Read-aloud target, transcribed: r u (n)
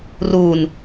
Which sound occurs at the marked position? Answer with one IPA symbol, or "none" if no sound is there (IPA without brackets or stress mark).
n